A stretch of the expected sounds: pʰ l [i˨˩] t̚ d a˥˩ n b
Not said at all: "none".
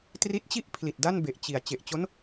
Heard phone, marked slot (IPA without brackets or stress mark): i˨˩